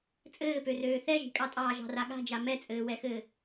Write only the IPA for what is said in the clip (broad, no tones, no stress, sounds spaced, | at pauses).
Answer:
t͡sʼ ɘː p ø r øː θ ɛ ʒ i̤ kʼ ɑ tʼ ɑː ʒ ɑ̤ r a ɠ a̤ d͡ʒ a m ɛ t͡sʼ ɘː w ɛ x ɘː